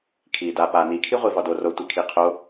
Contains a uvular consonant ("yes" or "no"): yes